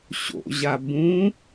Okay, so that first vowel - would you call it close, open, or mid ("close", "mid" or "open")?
mid